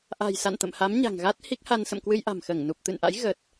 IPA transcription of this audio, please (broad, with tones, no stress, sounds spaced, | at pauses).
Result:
ʔ a̤˨˩ j s a̰˧˨ n t̪ ə̰˧˨ m h a˨˦ m ɲ a̤˨˩ ŋ ɣ a˦˥ t̚ h i˦˥ k̚ h a˧ n s ə̰˧˨ m k w ɨ˧ j ʔ a̤˨˩ m x əː˧˩ ŋ n u˨˩ p̚ t̪ ɨ̰˧˨ n ʔ a̰˧˥ j ɣ ə˨˩ t̚